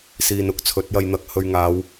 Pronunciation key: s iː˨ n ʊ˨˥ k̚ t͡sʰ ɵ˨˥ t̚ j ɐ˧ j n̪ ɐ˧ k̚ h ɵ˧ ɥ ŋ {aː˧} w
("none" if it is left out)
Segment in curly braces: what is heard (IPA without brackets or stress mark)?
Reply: aː˨˧